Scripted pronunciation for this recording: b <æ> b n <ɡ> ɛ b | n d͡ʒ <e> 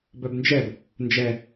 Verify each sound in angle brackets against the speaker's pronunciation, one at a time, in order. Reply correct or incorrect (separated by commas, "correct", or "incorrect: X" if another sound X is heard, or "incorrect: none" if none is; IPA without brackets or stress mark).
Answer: incorrect: œ, incorrect: d͡ʒ, incorrect: ɛ